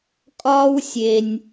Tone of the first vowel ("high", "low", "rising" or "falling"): high